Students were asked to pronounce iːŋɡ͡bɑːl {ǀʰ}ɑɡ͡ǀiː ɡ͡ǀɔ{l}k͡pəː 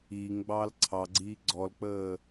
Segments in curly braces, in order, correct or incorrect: correct, correct

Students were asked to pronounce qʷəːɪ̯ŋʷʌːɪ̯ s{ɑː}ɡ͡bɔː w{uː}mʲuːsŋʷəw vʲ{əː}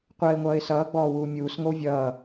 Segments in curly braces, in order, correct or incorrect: incorrect, correct, incorrect

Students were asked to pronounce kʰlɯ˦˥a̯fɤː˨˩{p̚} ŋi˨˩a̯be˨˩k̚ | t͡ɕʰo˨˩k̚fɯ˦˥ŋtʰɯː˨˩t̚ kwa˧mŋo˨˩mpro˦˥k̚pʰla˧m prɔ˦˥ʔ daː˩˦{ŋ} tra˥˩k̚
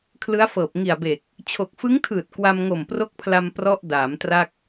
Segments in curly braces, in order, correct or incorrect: correct, incorrect

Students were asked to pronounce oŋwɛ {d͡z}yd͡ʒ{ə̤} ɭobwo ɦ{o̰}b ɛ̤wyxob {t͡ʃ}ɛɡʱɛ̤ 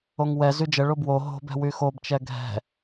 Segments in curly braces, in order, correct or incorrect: incorrect, incorrect, incorrect, correct

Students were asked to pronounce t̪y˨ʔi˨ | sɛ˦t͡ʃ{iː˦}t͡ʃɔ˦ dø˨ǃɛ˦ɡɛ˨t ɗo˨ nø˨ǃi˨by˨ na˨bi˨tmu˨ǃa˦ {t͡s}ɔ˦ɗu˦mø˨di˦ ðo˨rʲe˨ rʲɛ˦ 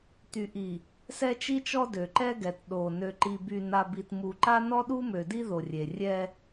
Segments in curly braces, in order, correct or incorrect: incorrect, incorrect

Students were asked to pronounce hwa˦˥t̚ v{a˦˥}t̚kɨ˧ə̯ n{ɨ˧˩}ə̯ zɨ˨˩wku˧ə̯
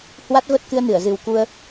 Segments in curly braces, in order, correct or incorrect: incorrect, correct

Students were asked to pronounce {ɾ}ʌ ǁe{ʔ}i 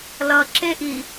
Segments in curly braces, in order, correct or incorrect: incorrect, correct

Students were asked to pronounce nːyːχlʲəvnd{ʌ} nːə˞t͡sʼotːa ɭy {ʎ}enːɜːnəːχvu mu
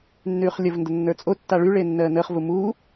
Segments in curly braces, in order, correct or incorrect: incorrect, incorrect

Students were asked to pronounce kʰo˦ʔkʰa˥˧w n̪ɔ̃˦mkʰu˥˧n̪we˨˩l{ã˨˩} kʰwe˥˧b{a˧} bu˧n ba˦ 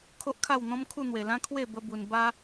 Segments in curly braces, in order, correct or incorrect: incorrect, incorrect

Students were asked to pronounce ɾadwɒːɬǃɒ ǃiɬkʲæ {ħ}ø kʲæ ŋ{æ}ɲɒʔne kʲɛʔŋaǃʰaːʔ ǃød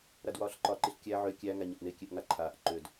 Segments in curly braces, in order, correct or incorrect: incorrect, correct

